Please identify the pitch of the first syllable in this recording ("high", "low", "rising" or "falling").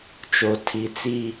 low